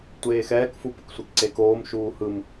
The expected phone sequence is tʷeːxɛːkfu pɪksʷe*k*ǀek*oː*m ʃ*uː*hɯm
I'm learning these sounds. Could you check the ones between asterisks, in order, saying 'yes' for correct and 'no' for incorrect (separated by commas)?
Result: yes, yes, yes